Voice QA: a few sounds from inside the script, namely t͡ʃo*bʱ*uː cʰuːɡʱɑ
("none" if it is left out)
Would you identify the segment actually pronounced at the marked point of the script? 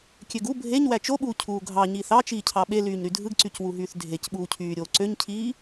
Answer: ɓ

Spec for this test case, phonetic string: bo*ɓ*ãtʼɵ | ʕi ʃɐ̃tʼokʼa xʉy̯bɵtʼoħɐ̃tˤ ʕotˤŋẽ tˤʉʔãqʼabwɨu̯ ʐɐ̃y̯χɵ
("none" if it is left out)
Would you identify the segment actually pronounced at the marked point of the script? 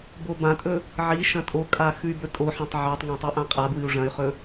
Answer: b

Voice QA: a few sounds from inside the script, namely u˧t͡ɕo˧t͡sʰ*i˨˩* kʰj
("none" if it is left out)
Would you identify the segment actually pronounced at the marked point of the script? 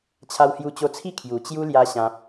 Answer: i˥˧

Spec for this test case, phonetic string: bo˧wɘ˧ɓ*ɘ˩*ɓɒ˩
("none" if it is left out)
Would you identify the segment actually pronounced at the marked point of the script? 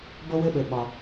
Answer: ɘ˩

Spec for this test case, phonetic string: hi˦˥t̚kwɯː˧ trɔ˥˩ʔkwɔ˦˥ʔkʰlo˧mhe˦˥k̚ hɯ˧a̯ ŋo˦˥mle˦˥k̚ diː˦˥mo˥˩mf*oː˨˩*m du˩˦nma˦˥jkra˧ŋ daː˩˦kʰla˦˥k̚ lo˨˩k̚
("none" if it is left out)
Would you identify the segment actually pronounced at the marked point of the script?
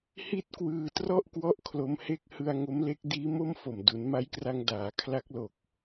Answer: o˨˩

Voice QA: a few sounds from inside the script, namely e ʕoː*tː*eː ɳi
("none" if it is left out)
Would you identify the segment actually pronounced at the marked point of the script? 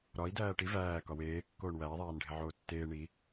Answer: tː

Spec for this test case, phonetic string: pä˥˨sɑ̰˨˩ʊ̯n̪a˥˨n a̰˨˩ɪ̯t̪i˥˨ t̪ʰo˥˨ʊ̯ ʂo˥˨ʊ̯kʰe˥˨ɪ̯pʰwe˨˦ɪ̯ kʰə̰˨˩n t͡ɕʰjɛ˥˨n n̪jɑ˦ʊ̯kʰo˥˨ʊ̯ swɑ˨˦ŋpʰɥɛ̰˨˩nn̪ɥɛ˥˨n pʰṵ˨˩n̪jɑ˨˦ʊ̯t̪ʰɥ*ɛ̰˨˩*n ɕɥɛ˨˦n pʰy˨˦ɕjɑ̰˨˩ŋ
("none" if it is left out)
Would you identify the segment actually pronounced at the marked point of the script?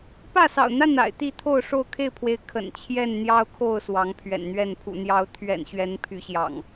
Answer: ɛ̰˨˩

